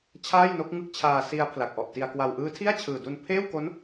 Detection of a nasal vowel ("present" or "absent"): absent